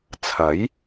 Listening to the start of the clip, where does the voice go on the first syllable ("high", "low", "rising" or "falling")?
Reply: rising